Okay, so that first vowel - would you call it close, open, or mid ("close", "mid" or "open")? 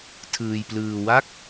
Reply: close